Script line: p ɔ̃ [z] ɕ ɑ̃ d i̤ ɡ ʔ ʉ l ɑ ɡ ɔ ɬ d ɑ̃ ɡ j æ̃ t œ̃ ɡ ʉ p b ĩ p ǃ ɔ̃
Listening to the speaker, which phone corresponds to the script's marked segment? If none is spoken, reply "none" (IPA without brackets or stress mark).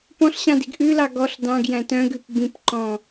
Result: ɬ